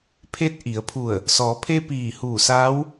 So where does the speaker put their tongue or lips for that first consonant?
lips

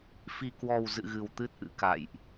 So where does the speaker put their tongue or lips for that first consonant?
lips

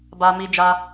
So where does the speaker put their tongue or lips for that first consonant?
lips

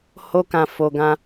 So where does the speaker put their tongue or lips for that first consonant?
throat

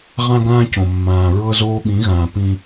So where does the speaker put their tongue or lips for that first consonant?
uvula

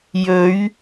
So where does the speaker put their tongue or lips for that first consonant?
palate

